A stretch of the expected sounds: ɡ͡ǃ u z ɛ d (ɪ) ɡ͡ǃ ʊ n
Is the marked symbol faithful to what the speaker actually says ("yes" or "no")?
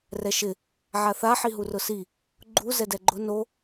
no